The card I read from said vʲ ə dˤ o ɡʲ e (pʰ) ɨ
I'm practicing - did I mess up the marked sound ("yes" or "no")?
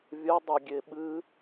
yes